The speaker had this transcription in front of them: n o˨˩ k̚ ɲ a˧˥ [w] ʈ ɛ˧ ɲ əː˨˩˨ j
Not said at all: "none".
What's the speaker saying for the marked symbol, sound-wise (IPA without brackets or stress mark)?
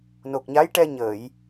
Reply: j